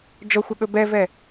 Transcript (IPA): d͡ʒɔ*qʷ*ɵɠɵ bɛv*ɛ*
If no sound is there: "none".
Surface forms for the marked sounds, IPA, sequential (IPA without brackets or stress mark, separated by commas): xʷ, ɛ